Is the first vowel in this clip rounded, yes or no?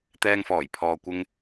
no